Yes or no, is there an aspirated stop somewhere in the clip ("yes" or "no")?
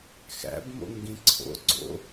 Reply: yes